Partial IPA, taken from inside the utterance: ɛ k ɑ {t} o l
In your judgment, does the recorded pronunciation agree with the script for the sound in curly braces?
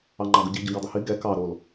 no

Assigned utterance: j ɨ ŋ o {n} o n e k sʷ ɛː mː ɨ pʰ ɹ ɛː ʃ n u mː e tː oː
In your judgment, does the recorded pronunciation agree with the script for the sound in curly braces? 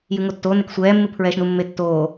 no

